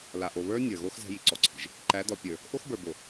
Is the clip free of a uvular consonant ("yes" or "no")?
yes